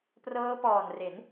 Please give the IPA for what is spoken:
p r ɤː˦˥ p ɔː˨˩ n r e˩˦ n

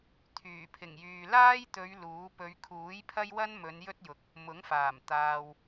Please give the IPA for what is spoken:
t̪ʰ yː˨˩ pʰ ɪ˨˩ ŋ j yː˨ l aː˥ j t̪ ɵ˨˧ ɥ l uː˨˥ p ɵ˨˧ ɥ kʰ uː˨˥ j pʰ ɐ˥ j w ɐ˥ n m ɵ˨˧ n j ɵ˥ t̚ j ʊ˨ k̚ | m ʊ˨˥ ŋ f aː˨˩ m t̪ aː˨ w

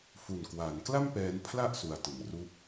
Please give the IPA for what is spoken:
f u˨˩ n k w aː˩˦ n k l a˥˩ m p ɛː˦˥ n pʰ l a˥˩ ʔ s u˩˦ a̯ t ɯ˩˦ ŋ r uː˥˩ p̚

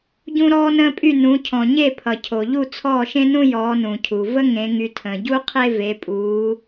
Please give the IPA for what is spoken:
ɟ ũ˦ ɾ ɔː˦ n ə̃ː˦ pʼ y˦˨ n ũ˨˦ cʰ ɔ̃˨ ɲ e˦˨ pʰ ʌ˨ cʰ o˨ ʎ u˦˨ t͡sʰ ɔː˦˨ ʃ ẽ˦ n ũ˦ j ɔː˨˦ n ũ˨ cʰ u˨ v ə˦ ŋ ẽ˨˦ ŋ y˨˦ tʰ ə̃ː˨ ɟ u˦ qʰ e˦ v e˨˦ pʼ uː˨˦

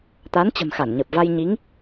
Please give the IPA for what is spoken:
t̪ a˨˦ n t͡ɕ ə̤˨˩ m x a˧˩ n ɲ ə˨˩ p̚ v a˧ j ɲ i˨˦ ŋ

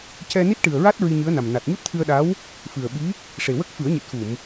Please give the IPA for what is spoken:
c ɛ˧ n i˦˥ t̚ ʈ ɨ˨˩ ə̯ ɹ a˦˥ t̚ ɹ i˧ ɲ ɨ˧˥ ə̯ n a˨˩ m n a˨˩ t̚ ɲ u˦˥ t̚ t̪ʰ ɨ˧ ə̯ ɗ a˧˥ w | f ɨ˨˩ ə̯ ɓ i˧˥ | ʂ e˨˩ w ə˦˥ k̚ f ɨ˨˩˦ ə̯ ɲ ɨ˨˩ t̚ x u˨˩˨ m

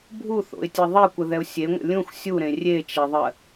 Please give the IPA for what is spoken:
bʱ u θ o̰ ɪ̯ tʲ ɛ ðˤ e kʷ ə ð ɛ ʊ̯ sʲ e ŋʷ ə̰ lʲ ũ x sʲ u ɾ ẽ rʲ e t͡ʃ ɛ ðˤ ɜ

